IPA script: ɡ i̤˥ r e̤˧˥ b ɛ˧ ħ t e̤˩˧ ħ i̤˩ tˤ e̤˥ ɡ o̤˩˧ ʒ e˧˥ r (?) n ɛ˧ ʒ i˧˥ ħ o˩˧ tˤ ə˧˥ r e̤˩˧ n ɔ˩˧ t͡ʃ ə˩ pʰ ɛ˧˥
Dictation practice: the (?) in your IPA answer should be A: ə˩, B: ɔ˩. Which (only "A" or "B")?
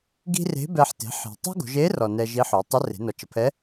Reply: B